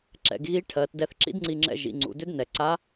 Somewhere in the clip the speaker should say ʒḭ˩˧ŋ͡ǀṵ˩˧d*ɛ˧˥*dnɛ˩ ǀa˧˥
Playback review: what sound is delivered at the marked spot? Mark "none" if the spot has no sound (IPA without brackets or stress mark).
ʏ˧˥